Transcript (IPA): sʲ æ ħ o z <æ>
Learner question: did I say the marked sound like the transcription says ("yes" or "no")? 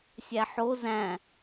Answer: no